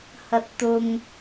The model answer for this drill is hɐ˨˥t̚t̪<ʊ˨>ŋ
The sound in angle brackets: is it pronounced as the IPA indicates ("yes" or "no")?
yes